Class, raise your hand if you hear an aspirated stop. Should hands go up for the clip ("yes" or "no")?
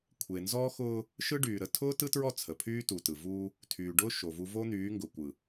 yes